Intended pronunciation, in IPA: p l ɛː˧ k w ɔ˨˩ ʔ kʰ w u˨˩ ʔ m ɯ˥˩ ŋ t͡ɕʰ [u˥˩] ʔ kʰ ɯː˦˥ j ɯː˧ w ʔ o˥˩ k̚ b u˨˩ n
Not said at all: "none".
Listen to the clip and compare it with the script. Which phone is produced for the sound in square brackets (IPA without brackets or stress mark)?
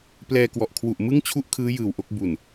u˥˩